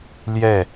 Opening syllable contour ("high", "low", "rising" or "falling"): falling